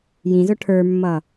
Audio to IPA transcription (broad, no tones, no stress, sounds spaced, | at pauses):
j ĩ z ʊ ʈʰ ə˞ mː ʌ